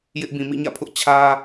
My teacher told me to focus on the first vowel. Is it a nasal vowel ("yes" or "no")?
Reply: no